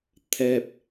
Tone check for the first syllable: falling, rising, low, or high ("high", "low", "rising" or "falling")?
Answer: low